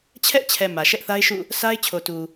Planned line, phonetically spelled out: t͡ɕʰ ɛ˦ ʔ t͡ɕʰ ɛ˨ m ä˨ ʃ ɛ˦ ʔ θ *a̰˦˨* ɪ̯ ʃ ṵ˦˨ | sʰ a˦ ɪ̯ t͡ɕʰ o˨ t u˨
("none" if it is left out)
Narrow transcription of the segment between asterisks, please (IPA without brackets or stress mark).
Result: a˦